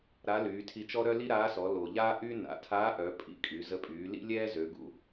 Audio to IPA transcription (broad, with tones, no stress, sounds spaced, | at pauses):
ɾ a˧˥ l yː˩˧ tʰ i˧ t͡ʃ ɔ˥ ɾ œ˥ l i˥ ɾ aː˧˥ s ɔ˩˧ l o˩ ʎ aː˥ ʔ y˥ n a̰˩˧ tʰ aː˧˥ ʔ œ˩˧ pʼ ḭ˧˥ kʼ y˩˧ z ə˧ pʼ yː˩˧ l ḭ˥ lʲ ɛː˥ z ø˩˧ ɡ ṵ˧